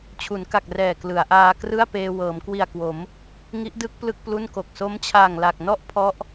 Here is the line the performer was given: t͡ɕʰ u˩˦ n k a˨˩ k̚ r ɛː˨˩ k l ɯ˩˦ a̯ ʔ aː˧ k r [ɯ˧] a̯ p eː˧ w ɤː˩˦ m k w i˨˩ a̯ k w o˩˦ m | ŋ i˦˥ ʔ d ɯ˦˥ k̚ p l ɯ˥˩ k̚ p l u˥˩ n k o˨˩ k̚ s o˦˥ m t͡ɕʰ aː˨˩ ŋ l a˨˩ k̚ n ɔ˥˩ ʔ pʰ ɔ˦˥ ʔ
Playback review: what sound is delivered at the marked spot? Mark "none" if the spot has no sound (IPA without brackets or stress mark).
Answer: ɯ˥˩